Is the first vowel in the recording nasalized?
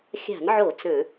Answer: no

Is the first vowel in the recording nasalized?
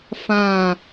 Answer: yes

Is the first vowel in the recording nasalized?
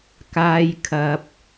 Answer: no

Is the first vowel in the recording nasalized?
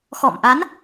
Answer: no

